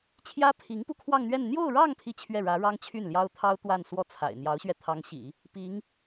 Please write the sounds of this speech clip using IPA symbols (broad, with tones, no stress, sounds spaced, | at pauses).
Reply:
t͡ɕʰ j ä˥ pʰ i˧˥ ŋ p u˥˧ kʰ w ɑ˥˧ ŋ n̪ ɥ ɛ˥˧ n n̪ j o˥˧ ʊ̯ ɻ ɑ˥˧ ŋ pʰ i˥˧ t͡ɕʰ ɥ ɛ˥˩ ɻ ä˧˥ ɻ ɑ˥ ŋ t͡ɕʰ y˥˩ n l j ɑ˥ ʊ̯ t̪ʰ ɑ˥ ʊ̯ t̪ w a˥˧ n s w ɔ˥˩ t͡sʰ a̰˨˩ ɪ̯ n̪ j ɑ˧˥ ʊ̯ ɕ ɥ ɛ˧ t̪ʰ ɑ˧˥ ŋ ɕ ḭ˨˩˦ | p i˧˥ ŋ